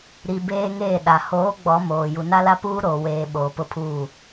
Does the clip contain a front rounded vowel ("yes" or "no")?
no